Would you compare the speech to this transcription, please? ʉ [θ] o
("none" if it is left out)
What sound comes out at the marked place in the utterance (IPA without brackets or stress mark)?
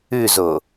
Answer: z